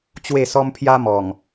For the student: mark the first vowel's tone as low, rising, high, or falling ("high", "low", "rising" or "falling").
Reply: falling